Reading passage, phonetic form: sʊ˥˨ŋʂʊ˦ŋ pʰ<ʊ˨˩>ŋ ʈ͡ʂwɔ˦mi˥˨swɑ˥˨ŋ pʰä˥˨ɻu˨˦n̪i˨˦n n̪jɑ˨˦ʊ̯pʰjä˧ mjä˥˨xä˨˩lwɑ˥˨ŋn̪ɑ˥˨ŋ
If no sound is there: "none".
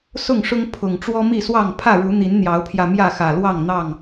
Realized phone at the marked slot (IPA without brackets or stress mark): ʊ˨˩